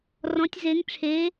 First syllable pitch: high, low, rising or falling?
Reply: rising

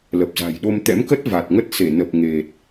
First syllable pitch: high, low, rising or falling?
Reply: low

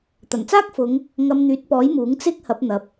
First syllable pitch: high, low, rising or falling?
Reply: low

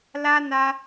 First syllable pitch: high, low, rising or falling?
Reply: high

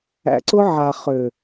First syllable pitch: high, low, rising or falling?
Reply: low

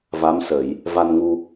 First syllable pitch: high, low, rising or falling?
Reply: rising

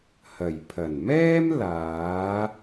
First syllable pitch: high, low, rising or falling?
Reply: low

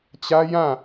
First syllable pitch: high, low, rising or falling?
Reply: high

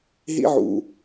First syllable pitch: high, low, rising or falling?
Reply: high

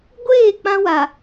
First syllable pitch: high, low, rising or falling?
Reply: falling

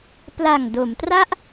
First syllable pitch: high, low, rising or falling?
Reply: low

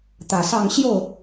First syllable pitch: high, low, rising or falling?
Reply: low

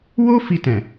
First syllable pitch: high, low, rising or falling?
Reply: high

